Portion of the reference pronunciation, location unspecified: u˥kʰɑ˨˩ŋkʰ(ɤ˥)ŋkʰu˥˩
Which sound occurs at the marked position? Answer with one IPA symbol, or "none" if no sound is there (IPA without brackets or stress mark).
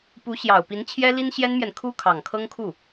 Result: ɤ˥